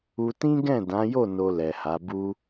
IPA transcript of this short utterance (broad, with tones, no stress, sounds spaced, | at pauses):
u˧ t ĩ˦ ɡ ɛ̃˦˨ d ã˨˦ j o˦˨ n o˧ l ɛ˨ h a˨˦ b u˦